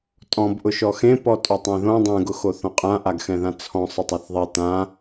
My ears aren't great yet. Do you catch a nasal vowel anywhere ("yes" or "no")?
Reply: yes